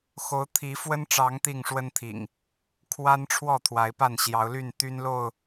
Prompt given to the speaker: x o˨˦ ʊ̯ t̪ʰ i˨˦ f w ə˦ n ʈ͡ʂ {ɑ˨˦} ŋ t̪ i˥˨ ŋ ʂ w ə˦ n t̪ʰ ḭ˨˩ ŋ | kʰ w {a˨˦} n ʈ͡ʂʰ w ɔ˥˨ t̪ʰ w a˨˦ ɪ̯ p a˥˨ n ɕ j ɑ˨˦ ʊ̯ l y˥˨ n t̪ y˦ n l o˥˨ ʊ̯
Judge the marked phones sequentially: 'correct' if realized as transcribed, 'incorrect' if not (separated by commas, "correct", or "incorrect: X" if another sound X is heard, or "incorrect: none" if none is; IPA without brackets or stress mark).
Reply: correct, incorrect: a˦